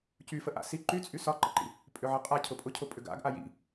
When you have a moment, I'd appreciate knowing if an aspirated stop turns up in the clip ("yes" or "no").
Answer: yes